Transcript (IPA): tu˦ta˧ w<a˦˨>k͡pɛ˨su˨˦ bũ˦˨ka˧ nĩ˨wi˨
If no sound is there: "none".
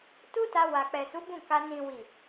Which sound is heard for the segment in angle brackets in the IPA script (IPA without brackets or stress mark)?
a˨